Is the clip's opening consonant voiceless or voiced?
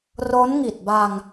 voiced